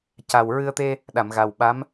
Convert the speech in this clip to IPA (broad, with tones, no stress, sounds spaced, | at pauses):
c a˨˩ w ɹ ɨ˧ ə̯ t̪ e˧ | ɗ a˨˩˨ m ɣ a˨˩ w ɓ a˧˥ m